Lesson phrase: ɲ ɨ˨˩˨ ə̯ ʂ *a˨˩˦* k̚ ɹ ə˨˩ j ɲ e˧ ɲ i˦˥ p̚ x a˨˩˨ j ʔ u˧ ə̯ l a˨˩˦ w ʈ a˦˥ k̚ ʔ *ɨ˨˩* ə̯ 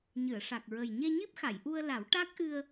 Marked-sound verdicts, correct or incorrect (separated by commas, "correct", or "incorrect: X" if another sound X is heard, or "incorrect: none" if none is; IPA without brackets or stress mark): incorrect: a˨˩, incorrect: ɨ˧